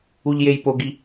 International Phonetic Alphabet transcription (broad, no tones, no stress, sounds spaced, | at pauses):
u ʎ j e j p o ɡ i